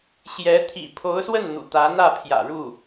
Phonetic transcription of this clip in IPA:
ɕ j ɛ˧˥ t̪ʰ ḭ˨˩ pʰ o˧˥ ʊ̯ s w ə˥˩ n n̪ ṵ˨˩ t̪ ä˧˥ n̪ ä˥˩ pʰ j ä̰˨˩ ɻ u˥˩

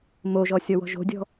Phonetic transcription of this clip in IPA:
m o ʒ ɔ sʲ ɔ w ɔ̤ ʒ o̤ dʲ ɔ̤

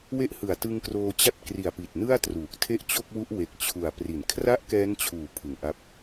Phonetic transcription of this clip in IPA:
w e˦˥ ʔ h ɯ˨˩ a̯ t ɯ˧ ŋ k r oː˧ t͡ɕ a˥˩ t̚ k r i˨˩ a̯ p i˨˩ t̚ n ɯ˥˩ a̯ t r uː˨˩ k̚ tʰ e˥˩ ʔ t͡ɕ o˥˩ k̚ w u˦˥ ʔ w e˨˩ k̚ t͡ɕʰ u˨˩ a̯ p r i˩˦ n kʰ r a˥˩ ʔ k ɛː˦˥ n t͡ɕʰ uː˨˩ pʰ ɯ˨˩ ŋ ʔ a˦˥ p̚

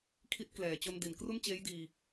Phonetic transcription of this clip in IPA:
kʰ i˦˥ t̚ k l ɛː˨˩ t͡ɕ o˧ n d i˩˦ n k r u˥˩ n t͡ɕ eː˦˥ j d iː˧

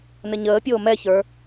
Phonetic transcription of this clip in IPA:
n ə ɲ əː pʲ oː m ɛ ç ə˞

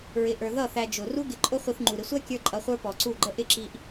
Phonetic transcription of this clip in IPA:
ɹ ɪ˧ ʔ ə˞˧ ð ʌ˦˨ θ æ˧ d͡ʒ ʊ˨ r u˧ ɡ ɪ˨ ǃʼ ʊ˧ χʷ i˧ θ ŋ͡ǃ u˨ ɾ ɪ˧ sʷ æ˦ kʲ ə˞˦ ǃʼ ʌ˧ χʷ ə˞˦ p ɔ˨ ǀ u˦˨ ɡ͡ǃ ə˦ ʔ ɪ˦˨ ǁ i˧ ʔ

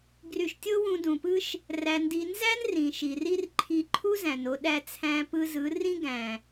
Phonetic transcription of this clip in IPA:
ɡ r y˧ ʃ tʲ o˦ w ũ˧ d ũ˨ p ɯ˦ ʃ | r æ˧ n d i˧ n z æ˦ n r ĩ˨ ʃ i˨ r i˦ r ǃʰ i˧ ǃʰ u˦ z æ̃˨ n o˧ ɗ æ˧ t͡sʰ æ̃˧ p ɯ˧ z ɯ˨˦ r ĩ˦ ɡ æ̃˨

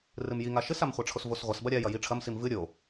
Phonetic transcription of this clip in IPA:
r ɨ m j i ŋ a ʃ ɨ s a m χʷ a ʈ͡ʂʰ o s v o s ʁʷ ɐ s b ɐ ɾʲ a j ɐ j i ʈ͡ʂʰ ɐ m s i m v ɨ ɾʲ o

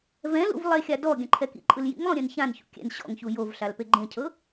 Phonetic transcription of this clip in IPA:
v ɛ̃ l ṵ v lˠ e xʲ a d ɔ ɡʲ ã ǃʰ ɛ k ḭ ǃʼ ɯ l j ḭ ŋ lˠ ũ ɾʲ ɛ̃ n ç ã n ç ṵ kʲ ɛ̰ n ɕ ɔ̰ ŋ ç u j o v ɬ a l p e ɡ͡ǃ ẽ cʰ ɤ

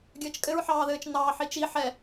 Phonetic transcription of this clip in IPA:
ɡʲ ɘː t͡ʃ kʼ ɘ ɹ ħ ɑː ð ɘː t͡ʃ n ɑː ħ i t͡ʃ i ħ ɛ

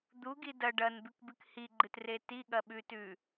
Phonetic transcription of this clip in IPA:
d̪ u ɡ i d ɐ ɖ ɐ n b ʉ k b ɨ k h i ɡ͡ǃ ɨ t r e t i ɠ ɐ ɓ ʉ t ʉ

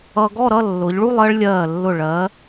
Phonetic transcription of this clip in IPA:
ʌ˧ ɡ ɔ˥˧ ɾ ʌ˥˧ lː ʊ˩˧ ʎ ɭ u˥˧ lˠ ɜ˥ ɭ lʲ ɜː˧˩ lː ʊ˧˩ ɭ ɜ˩˧

